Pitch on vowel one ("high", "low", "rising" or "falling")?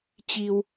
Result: low